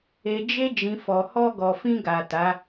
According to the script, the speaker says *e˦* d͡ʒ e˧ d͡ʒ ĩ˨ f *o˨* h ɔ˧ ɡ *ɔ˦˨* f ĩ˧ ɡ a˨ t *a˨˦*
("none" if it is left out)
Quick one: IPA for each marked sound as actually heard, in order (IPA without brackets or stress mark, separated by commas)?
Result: e˨, ɔ˨, ɔ˨, a˨˦